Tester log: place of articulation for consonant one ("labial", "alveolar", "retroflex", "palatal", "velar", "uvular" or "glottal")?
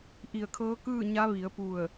glottal